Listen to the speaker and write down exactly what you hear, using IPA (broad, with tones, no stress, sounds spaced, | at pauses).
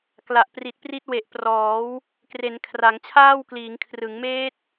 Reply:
k l a˨˩ ʔ p r i˨˩ t̚ p r i˦˥ t̚ w e˨˩ ʔ p r ɔː˩˦ w | k r e˩˦ n kʰ r a˩˦ ŋ t͡ɕʰ aː˥˩ w k l iː˩˦ ŋ kʰ r ɯ˩˦ ŋ m eː˦˥ t̚